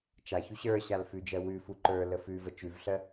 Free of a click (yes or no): no